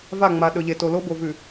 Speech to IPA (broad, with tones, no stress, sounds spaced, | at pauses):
v a˦˨ ŋ͡m a˨ ɗ ɵ˨ ʎ e˨ t o˨ l o˦ b o˨ v ʉ˨